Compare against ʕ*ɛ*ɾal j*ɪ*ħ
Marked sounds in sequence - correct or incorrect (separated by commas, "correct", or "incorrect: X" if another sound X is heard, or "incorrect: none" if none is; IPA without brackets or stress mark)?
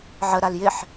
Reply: incorrect: ə, correct